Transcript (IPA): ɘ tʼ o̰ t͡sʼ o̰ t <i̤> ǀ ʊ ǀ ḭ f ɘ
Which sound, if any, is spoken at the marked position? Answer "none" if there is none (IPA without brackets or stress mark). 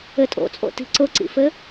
i̤